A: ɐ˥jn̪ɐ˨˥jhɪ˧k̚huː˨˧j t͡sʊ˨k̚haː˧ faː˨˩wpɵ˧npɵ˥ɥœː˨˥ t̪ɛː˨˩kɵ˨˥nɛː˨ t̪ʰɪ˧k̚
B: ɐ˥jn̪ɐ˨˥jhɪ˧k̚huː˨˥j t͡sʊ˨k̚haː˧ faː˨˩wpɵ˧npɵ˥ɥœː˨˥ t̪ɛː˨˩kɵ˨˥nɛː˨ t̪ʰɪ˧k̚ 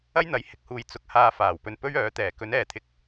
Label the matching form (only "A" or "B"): A